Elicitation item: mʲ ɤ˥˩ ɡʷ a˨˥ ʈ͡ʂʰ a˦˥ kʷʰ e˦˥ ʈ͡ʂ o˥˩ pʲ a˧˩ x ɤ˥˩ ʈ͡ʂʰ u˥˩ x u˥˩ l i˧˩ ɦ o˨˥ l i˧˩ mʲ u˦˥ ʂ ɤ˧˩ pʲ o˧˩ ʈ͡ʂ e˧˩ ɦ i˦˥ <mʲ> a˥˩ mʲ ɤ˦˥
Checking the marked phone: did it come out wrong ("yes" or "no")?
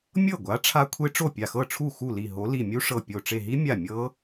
no